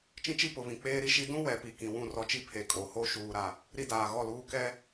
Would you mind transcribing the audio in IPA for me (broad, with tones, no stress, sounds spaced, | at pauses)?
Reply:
t͡ʃ ĩ˦ t͡ʃ i˦ p ʊ˨ β ĩ˨ k͡p eː˦ ɾ i˦ ʃ i˦ d ũ˦ w ɛ˨ p i˨ k ĩ˨ w ũ˦˨ r ɔ˦ t͡ʃ i˦ pʰ e˨ kʼ o˨ h o˦ ʃ uː˨ ɾ a˨ | ɾ i˦ d aː˨ ɣ ɔ˦˨ l uː˦ k ɛ˦